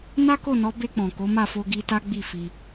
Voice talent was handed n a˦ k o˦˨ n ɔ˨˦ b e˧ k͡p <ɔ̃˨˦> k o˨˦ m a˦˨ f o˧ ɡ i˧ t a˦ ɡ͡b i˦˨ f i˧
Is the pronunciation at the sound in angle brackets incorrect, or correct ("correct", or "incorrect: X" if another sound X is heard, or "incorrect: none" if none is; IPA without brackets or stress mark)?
incorrect: ɔ̃˨